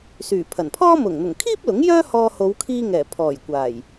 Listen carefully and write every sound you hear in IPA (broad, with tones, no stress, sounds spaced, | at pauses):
s yː˨˩ pʰ ɐ˨˩ n pʰ ɔː˥ m ʊ˨˩ ŋ n̪ ʊ˨˩ ŋ kʰ iː˥ p̚ l ʊ˨˥ ŋ j œː˥ h ɔː˧ h o˨˧ w kʰ iː˧ ŋ ɛː˨˩ pʰ ɔː˨˩ j kʷ aː˨˩ j